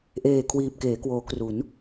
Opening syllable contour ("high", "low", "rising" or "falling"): low